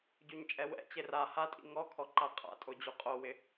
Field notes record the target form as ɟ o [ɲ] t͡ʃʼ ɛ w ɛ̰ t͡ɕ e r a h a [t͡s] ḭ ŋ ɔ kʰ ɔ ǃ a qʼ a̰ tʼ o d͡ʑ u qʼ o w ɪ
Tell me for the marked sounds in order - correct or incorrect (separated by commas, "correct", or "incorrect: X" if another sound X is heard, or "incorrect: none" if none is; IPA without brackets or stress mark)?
correct, incorrect: tʼ